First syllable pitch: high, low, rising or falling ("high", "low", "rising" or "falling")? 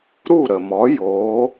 falling